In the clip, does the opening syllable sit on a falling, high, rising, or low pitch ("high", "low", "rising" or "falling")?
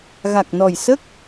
low